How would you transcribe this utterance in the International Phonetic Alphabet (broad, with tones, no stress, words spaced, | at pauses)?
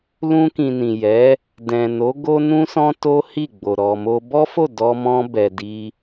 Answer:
lũ˧kĩ˨ nĩ˨jɛ˨˦ | dɛ̃˨no˨˦ ɡo˦nũ˦sɔ̃˦ to˦hi˦˨ɡ͡bo˨ ɾɔ˨mo˧ bɔ˦fo˦˨ dɔ˧mɔ̃˧ bɛ˨di˧